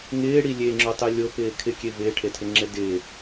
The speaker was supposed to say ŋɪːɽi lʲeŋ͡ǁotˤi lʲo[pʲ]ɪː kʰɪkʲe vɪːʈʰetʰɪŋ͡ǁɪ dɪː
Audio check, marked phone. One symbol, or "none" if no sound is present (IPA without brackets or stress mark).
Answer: p